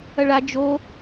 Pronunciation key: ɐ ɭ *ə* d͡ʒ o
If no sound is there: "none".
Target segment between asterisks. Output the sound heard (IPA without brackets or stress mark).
a